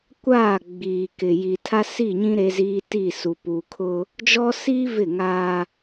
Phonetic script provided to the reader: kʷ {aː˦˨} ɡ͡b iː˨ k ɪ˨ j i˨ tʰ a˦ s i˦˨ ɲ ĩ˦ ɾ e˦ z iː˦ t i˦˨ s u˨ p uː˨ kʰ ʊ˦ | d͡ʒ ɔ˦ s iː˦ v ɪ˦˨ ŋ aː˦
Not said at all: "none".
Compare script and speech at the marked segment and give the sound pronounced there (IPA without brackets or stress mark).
aː˦˨